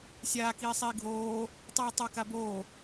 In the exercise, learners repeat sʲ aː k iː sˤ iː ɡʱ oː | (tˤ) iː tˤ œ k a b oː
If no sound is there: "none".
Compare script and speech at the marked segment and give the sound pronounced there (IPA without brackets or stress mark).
tˤ